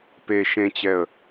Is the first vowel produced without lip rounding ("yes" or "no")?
yes